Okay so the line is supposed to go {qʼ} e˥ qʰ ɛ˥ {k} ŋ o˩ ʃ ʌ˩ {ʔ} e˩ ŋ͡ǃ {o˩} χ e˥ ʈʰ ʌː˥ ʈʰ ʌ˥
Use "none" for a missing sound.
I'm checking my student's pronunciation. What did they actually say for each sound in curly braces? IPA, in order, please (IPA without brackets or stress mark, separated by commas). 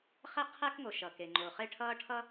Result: χ, k, k, o˩